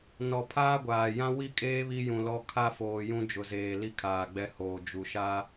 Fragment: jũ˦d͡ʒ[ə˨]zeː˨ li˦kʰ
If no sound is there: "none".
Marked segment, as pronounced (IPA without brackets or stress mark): ʊ˨